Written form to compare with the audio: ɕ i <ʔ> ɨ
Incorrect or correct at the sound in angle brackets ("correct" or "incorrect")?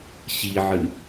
incorrect